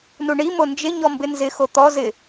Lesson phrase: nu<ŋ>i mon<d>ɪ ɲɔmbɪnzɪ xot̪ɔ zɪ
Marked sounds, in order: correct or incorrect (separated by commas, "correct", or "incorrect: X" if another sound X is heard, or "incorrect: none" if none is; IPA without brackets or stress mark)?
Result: incorrect: ɳ, incorrect: d͡ʒ